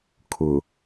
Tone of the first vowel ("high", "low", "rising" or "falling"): low